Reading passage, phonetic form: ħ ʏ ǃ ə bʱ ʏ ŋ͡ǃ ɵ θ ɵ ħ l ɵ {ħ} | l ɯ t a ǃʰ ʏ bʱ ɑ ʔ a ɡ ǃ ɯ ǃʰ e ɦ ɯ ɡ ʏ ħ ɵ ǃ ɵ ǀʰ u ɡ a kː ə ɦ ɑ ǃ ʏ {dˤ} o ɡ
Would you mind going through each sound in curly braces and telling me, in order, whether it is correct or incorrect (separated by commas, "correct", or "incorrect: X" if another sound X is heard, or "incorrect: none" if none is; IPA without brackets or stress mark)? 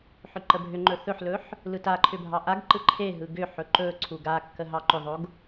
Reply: correct, incorrect: ðˤ